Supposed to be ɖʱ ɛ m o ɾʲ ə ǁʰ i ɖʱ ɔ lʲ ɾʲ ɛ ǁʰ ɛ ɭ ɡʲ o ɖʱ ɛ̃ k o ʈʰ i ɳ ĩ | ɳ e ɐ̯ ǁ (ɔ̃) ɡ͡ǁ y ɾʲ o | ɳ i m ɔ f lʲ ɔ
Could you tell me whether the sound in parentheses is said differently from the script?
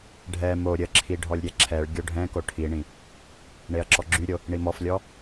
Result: yes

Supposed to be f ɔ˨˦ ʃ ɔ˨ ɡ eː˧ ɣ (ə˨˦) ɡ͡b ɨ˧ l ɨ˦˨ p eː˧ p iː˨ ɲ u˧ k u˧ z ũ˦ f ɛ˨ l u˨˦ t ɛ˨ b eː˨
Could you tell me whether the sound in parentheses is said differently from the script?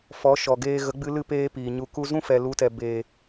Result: no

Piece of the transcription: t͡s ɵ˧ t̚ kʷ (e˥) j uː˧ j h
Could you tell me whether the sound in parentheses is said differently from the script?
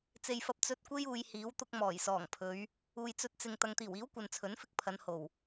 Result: no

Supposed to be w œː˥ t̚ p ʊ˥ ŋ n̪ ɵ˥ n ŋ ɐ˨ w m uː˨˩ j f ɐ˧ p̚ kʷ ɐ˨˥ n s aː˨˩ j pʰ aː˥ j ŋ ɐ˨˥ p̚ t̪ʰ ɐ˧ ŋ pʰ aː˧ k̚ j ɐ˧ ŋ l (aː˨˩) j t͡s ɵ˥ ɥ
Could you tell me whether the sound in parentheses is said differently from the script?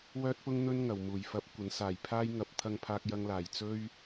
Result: no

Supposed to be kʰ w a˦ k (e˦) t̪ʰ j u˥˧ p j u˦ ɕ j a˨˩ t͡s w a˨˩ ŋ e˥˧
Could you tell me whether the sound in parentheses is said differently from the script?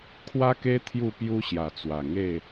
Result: no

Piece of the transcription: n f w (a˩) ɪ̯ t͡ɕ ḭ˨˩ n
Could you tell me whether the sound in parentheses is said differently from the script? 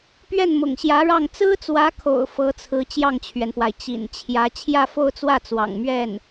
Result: no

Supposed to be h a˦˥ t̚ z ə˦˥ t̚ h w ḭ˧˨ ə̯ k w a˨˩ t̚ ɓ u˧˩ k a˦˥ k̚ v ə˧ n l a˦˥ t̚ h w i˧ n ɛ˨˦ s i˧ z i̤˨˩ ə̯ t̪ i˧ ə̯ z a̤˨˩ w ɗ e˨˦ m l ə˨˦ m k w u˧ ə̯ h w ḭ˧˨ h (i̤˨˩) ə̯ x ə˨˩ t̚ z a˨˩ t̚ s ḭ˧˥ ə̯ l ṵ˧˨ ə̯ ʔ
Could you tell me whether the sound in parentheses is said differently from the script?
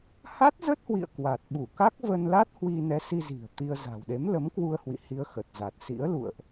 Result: yes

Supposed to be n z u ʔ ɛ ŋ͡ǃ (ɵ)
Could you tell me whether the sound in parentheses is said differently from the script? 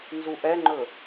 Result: no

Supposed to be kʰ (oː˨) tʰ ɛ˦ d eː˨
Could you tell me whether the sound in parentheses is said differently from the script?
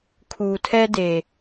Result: yes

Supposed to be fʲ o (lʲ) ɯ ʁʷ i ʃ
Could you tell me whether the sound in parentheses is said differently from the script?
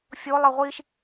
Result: yes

